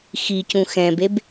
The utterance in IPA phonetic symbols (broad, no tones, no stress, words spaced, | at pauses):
xicũ xɛ̃beb